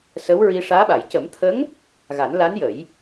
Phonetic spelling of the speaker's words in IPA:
s ə˧˥ w ɹ i˧ ʂ aː˧˥ ɓ a˨˩˨ j c ə˨˩˦ m t̪ʰ ə˧˥ ŋ | ɣ a˨˩˦ n l a˧˥ n j ə˨˩˦ j

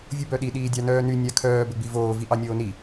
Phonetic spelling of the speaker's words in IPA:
vʲ u b œ ɗ i ɗ iː dʲ ɑ n œː n y nʲ a kʰ œː b ɘ ɡ͡b i v oː v i ʔ ɑ nʲ oː n i

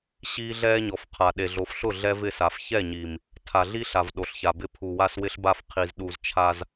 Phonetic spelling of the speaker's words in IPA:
ɕ iː˦ ɮ ɛː˦ ɲ ɔ˨ f qʰ a˨ ɗ e˨ ɮ o˨˦ f ɬ ʊ˦˨ ɮ ɛ˦ v ɪ˦˨ s a˨ f ç ɛ˦˨ ɲ i˨ m | tʰ a˨ ɮ i˦ ɬ a˨ v ɗ o˨ ɬ ç a˨ b ɪ˦ pʰ u˨ w a˦ s w ɪ˦ ɬ b a˦ f qʰ i˨ z ɗ u˨ z t͡ʃʰ a˦ z

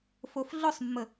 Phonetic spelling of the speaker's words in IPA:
f o f ɮ ʊ sˤ mː ə

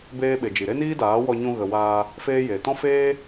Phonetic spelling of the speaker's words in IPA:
b eː˦ ɓ e˨ d͡ʒ i˨ ɾ e˦ n iː˦ d aː˨˦ w ɔ˧ ɲ ũ˧ ɣ ə˨ w aː˧ | f eː˦ j e˨ t ɔ̃˦ f eː˦

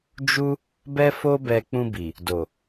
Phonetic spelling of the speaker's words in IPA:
d͡ʒ u˦ | b ɛ˦ f o˦ b ɛ˧ k͡p ũ˧ b i˨ | d o˨

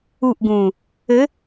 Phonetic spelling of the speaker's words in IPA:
u ʔ ɡ ũː | ɘ

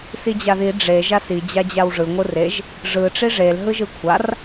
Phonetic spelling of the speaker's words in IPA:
s i d͡ʑ a ð i ɖ͡ʐ e ʒ a s i d͡ʑ a d͡ʑ a w ʐ ɯ ŋʷ ɯ r e ʒ | ʐ ɯ ʈ͡ʂ i ʐ e l ɦ ɯ ʒ ɯ kʷʰ a r

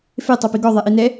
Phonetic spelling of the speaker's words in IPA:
f e tˤ o p i ɡ ɔ ðˤ ɛ ʔ i n ɛ

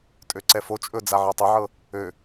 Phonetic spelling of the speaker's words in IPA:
tʼ ø ǀ ɛ f o t͡ʃʼ ɵ d͡z a ʕ ɤ tˤ ə ʕ ɤ | ø

